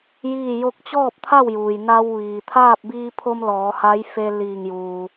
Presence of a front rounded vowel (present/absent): absent